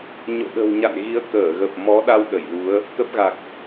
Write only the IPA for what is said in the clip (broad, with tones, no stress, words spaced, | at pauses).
ɲo̰˧˨ ɗə̤˨˩wɲa̰˧˨nɣi˨˦ə̯ kəː˧˩ɣə˨˩p̚ mɔ˨˦ɗa˧w ɗə˧˩jlu˨˦ə̯ | kə˦˥p̚ɣa˨˩k̚